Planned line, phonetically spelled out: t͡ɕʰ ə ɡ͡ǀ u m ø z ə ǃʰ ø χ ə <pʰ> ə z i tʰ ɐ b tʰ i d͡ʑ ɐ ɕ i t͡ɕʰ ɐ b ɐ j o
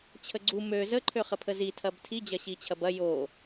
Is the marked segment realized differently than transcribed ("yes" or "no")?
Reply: no